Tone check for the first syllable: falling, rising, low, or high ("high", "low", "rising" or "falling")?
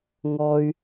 high